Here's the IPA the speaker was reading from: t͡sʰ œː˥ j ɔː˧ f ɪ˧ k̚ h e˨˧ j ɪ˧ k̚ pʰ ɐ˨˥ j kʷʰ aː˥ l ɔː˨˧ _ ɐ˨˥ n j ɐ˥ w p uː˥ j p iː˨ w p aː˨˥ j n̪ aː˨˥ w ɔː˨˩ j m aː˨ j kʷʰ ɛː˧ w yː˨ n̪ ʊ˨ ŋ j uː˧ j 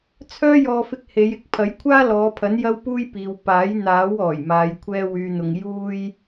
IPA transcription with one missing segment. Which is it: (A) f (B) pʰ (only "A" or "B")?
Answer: B